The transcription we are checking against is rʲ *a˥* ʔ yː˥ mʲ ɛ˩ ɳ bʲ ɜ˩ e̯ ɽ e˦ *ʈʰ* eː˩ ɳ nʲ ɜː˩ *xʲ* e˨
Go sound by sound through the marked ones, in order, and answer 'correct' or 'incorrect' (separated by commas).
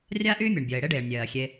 correct, incorrect, correct